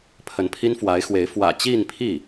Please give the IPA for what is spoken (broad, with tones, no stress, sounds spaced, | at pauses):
pʰ ə˧˥ n pʰ i˥ n f w a˧˥ ɪ̯ x w e˧˥ ɪ̯ f w ä̰˨˩ t͡ɕ i˥˧ n pʰ i˥˩